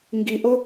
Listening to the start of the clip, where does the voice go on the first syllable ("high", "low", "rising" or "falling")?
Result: high